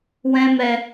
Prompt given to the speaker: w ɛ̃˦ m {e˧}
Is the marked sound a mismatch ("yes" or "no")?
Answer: yes